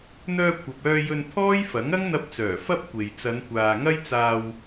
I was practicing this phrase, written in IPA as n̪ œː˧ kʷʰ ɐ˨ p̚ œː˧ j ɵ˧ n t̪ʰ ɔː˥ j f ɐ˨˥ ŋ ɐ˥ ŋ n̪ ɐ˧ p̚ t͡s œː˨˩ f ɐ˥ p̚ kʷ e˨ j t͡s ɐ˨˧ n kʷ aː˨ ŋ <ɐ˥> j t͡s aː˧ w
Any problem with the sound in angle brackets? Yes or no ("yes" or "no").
no